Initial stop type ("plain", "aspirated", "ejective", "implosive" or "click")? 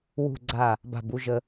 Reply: click